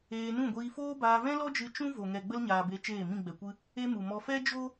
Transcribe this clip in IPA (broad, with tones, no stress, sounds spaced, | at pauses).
eː˧ n ũ˦˨ ɡʷ iː˧ f oː˦ b aː˧ v ɛ̃˦ l ɔ˦ d͡ʒ ɨ˧ t͡ʃ ũ˦ v o˨ ŋ ɛ˨ ɡ͡b ə˦ l ɲ aː˨ b e˨˦ t͡ʃ eː˦˨ m ĩ˦˨ ɡ͡b ɛ˨ kʷ ɨ˦ | e˦ m u˨ m ɔ˧ f ɛ˦ d͡ʒ o˦